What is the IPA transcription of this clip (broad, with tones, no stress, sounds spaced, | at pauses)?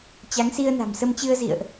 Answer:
t͡ɕ a˨˦ ŋ s i˧ ə̯ n a̤˨˩ m s ə˧ m t͡ɕ ɨ˧ ə̯ z ḭ˧˨ ə̯ ʔ